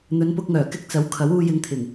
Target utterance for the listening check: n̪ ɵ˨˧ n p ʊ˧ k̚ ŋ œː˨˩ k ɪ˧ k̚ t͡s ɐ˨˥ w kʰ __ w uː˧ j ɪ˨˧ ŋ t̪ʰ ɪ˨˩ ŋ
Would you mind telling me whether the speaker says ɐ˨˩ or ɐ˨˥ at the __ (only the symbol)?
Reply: ɐ˨˥